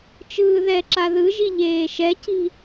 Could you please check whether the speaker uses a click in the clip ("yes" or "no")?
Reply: yes